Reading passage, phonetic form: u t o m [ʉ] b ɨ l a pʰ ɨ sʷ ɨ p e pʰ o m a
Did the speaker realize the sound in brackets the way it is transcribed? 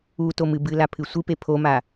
no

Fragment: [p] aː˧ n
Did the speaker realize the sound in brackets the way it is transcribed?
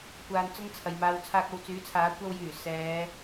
no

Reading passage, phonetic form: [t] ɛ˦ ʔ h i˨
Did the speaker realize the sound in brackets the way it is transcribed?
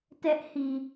yes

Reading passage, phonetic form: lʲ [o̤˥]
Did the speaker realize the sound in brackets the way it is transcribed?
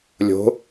no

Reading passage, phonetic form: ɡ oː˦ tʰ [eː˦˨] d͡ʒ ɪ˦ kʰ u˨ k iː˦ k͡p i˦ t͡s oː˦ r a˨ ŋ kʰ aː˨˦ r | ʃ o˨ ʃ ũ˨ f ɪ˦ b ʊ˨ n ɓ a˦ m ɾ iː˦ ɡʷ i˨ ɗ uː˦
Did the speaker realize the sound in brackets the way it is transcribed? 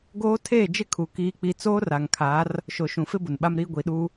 yes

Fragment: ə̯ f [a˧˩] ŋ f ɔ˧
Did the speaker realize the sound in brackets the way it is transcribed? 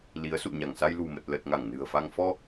no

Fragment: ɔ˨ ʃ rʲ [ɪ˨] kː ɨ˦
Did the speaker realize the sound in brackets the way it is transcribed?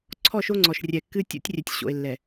no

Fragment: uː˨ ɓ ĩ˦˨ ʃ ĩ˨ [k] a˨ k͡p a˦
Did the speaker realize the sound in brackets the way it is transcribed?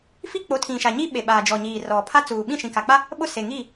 yes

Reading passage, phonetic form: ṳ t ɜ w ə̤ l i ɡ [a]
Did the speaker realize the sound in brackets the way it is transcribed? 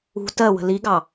no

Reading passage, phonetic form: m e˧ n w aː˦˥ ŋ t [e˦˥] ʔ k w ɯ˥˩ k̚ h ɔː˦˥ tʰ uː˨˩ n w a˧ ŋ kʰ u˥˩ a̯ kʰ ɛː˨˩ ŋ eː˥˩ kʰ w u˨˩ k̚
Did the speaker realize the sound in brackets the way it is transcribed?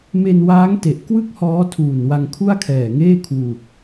no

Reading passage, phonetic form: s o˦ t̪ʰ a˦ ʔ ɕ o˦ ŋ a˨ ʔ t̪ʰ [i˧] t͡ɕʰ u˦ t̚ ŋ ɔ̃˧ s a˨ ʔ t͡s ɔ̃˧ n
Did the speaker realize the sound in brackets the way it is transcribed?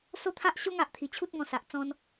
no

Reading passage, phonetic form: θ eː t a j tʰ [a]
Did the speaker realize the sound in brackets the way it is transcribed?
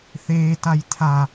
yes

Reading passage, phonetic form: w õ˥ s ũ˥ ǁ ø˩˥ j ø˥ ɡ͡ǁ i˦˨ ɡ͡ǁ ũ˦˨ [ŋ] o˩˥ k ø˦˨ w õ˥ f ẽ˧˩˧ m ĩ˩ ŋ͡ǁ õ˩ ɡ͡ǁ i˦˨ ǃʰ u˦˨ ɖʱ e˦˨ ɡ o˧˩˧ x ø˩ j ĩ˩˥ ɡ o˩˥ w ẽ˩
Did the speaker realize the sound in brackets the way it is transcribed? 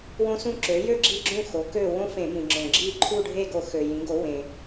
no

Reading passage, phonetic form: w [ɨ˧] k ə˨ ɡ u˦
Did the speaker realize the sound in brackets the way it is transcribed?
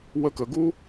no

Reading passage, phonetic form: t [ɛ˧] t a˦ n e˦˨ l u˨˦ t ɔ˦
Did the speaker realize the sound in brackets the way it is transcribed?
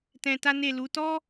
no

